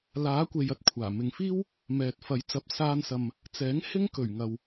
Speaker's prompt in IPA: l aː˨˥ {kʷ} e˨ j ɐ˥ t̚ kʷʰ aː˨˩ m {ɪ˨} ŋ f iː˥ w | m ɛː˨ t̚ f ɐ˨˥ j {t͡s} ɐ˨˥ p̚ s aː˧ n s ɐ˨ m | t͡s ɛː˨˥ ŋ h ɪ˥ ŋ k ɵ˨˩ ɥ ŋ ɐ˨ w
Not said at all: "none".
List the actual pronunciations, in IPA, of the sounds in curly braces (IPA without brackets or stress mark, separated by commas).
kʷ, ɪ˨, t͡s